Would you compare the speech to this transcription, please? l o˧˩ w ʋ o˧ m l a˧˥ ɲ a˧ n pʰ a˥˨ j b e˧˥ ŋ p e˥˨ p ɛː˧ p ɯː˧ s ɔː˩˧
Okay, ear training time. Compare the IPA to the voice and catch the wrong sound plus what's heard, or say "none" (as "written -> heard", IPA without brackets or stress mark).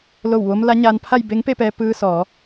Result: none